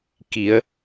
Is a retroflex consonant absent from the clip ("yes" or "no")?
yes